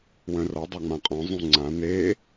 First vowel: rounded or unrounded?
rounded